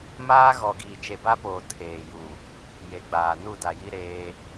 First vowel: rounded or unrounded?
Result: unrounded